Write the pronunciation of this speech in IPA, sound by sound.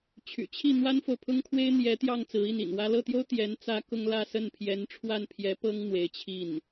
t͡ɕʰ y̰˨˩ t͡ɕʰ i˥˩ n̪ w a˥ n f o˨ ʊ̯ pʰ ʊ˥ ŋ kʰ w e˥ ɪ̯ n̪ j ɛ˧˥ t̪ j ɑ˥˩ ŋ t͡s ɹ̩˧˥ i˥˩ n ḭ˨˩ n w ä˥ l ɤ˥˩ t̪ j o˥ ʊ̯ t̪ j ɛ˧˥ n t͡s ä˥ k ʊ˥ ŋ l ä˥˧ s ə˥˩ n pʰ j ɛ˧˥ n ʈ͡ʂʰ w a˥˩ n pʰ j ɛ˧˥ p ɤ˥ ŋ n̪ w e˧˥ ɪ̯ t͡ɕʰ i˥˩ n

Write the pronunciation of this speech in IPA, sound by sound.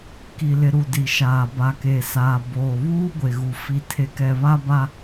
k i˨ l ɪ˨ ɾ u˨ d i˨ ʃ aː˨ b a˨ k e˨ s aː˨ b oː˨ β uː˦ ɡʷ e˨ ɣ u˨ f i˨ tʰ e˨ k ɛ˨ β a˦ b a˦

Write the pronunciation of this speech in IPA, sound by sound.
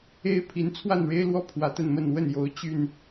e˦ ɪ̯ pʰ i˨˦ n t͡sʰ w a˥˨ n ɻ e˦ ɪ̯ l w ɔ˥˨ pʰ w ä˨˦ t̪ ə˥˨ n m ə˥˨ n w ə˥˨ n j o˨˦ ʊ̯ t͡ɕ y˥˨ n

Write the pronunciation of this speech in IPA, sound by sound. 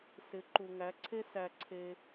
s ɪ˨˦ ǃ u˨ ŋ æ˨˦ ǀʰ e˦ s æ˧ ǀʰ e˧

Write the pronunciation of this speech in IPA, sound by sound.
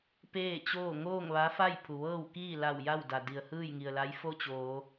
p eː˥˨ t͡ɕ oː˥˨ ŋ oː˥˨ ŋ ʋ a˧˥ f a˥˨ j pʰ u˩ ʋ ɤː˥˨ w k iː˥˨ l a˧˩ w j a˥˨ w d a˩ d i˩ ə̯ h ɯː˥˨ j ŋ i˩ ə̯ l a˧˥ j f o˥˨ t͡ɕ oː˩˧

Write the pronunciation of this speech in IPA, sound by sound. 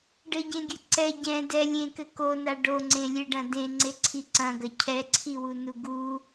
ɖ ɘ ɟ ẽ ɡʲ ɘ ǀ ɛ ɟ ɛ̃ d ɛ lʲ ẽ k ɘ k o n a ɖ o ŋ͡ǀ ẽ lʲ e ɖ ɐ̃ d ẽ ŋ͡ǀ e ǀʰ i ǀ ɐ̃ ɡ ɐ cʰ ɛ ǀʰ i w u n u ɡ u

